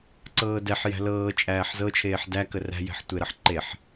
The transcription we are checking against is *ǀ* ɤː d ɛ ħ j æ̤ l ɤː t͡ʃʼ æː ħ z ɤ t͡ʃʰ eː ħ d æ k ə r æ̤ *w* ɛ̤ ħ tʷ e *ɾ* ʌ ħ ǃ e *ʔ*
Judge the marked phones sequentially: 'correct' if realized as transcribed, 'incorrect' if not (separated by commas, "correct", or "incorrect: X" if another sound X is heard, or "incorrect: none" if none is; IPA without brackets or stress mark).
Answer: correct, incorrect: j, correct, incorrect: ħ